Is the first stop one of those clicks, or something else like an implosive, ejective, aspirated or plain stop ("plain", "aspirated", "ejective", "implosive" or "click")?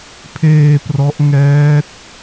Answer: aspirated